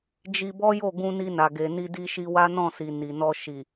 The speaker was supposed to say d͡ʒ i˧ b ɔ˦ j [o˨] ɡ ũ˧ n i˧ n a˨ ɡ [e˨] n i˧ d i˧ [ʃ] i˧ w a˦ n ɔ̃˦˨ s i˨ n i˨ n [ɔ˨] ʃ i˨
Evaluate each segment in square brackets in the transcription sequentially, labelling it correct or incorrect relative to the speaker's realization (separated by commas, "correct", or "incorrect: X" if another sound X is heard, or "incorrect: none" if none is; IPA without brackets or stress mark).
incorrect: o˦˨, correct, correct, incorrect: ɔ˧